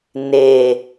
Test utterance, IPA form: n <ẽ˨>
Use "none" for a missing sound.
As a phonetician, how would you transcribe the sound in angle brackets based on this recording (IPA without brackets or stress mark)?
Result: e˨